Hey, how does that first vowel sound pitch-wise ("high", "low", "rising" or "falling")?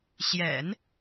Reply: low